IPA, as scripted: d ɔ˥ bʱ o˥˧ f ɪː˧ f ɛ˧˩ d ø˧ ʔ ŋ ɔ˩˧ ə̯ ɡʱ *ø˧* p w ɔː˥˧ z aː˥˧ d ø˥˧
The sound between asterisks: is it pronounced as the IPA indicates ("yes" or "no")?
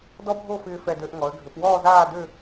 no